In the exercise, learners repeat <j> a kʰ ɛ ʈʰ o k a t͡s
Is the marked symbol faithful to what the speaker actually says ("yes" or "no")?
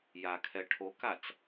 yes